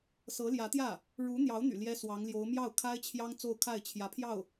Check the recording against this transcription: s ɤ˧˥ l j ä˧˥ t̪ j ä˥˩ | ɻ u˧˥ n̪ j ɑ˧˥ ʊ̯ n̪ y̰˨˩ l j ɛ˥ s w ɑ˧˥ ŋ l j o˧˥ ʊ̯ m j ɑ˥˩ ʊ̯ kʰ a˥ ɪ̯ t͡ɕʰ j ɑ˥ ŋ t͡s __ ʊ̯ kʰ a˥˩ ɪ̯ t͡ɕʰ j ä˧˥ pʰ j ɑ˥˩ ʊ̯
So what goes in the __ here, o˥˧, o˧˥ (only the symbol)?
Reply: o˥˧